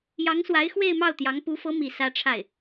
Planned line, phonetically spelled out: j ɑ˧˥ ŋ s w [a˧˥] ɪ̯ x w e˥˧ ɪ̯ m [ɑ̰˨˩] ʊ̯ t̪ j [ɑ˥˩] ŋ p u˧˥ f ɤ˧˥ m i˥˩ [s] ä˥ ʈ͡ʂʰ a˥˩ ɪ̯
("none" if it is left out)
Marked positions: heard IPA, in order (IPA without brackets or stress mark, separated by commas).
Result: a˧˥, ɑ˥˩, ɑ˧˥, s